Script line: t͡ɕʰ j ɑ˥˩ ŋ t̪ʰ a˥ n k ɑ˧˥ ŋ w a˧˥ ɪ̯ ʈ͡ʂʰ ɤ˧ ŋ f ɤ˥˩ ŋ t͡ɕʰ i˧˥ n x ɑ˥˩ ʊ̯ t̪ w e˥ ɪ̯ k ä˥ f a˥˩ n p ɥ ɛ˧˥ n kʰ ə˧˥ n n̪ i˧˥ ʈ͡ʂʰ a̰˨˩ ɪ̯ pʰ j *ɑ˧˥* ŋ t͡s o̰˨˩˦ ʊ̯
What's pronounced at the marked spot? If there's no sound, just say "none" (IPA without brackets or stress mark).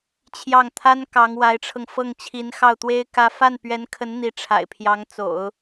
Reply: ɑ˧˥